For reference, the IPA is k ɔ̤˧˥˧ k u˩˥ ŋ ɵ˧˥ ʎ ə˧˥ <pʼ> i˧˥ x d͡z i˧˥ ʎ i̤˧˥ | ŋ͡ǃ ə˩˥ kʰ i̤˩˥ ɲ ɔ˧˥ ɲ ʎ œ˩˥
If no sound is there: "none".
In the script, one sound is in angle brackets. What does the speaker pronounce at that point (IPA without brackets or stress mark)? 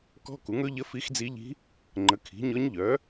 f